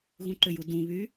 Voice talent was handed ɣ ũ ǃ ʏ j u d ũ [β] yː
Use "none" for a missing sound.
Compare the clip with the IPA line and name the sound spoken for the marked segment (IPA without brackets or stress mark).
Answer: β